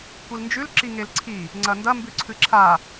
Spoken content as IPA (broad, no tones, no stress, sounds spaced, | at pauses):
kʷ i l n d͡ʒ ʉ l ǁ i ŋ e l ǀʰ i | ŋ͡ǀ ɐ n d ɐ m b ʉ ǀʰ ɨ ǁʰ a